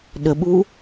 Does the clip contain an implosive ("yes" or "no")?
yes